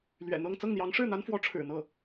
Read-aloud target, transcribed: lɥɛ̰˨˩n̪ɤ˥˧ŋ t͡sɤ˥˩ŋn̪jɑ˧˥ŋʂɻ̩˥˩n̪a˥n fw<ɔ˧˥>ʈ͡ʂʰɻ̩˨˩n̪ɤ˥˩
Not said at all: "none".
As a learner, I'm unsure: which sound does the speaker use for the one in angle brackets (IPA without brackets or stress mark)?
ɔ˧˥